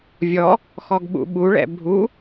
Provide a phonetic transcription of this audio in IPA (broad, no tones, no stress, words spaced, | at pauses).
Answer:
vʲɔ | xɔɡɓṵɓu ɭɛ̰bʱu